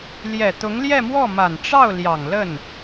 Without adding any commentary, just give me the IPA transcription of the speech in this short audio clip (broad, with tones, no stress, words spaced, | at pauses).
ljɛ˨˩t̪ʊ˧˥ŋ ljɛ˥˧mwɔ˥˩ ma˨˩n ʈ͡ʂɑ˥˩ʊ̯ ljɑ˨˩ŋlə˥˩n